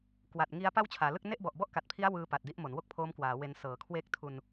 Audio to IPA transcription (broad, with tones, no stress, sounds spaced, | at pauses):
k w a˨˩ t̚ ŋ i˦˥ a̯ p a˥˩ w t͡ɕʰ aː˩˦ l ɯ˥˩ k̚ n e˥˩ ʔ b ɔ˨˩ ʔ b ɔ˥˩ ʔ k a˨˩ t̚ pʰ i˦˥ a̯ w ɯː˦˥ p a˨˩ t̚ d i˦˥ ʔ m o˩˦ n w o˥˩ k̚ pʰ oː˦˥ m k w aː˩˦ w e˧ n s ɤː˩˦ kʰ w e˦˥ k̚ tʰ u˧ n